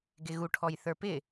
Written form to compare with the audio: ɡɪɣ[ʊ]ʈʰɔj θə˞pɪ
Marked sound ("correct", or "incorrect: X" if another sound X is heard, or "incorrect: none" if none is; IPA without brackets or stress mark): incorrect: u